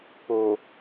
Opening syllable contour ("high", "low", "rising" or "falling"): low